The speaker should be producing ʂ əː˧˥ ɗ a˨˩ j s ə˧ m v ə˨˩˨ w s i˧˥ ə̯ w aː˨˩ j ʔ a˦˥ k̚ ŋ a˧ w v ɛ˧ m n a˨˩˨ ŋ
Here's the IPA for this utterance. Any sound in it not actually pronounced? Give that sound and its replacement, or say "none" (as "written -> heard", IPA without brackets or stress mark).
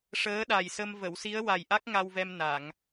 aː˨˩ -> a˨˩